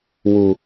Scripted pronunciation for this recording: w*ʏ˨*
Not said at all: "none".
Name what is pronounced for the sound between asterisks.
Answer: u˨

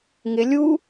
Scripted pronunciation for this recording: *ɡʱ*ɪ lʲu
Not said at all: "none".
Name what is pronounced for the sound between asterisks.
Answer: ŋ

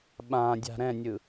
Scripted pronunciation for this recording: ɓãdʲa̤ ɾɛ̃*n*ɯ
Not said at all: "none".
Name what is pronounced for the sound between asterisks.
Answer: nʲ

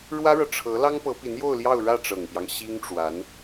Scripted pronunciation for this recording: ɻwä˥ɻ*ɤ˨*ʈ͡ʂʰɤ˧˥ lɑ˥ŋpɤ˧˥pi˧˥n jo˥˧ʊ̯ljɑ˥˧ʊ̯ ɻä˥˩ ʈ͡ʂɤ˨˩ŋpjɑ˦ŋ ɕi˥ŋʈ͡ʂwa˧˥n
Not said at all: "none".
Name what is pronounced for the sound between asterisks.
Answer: ɤ˨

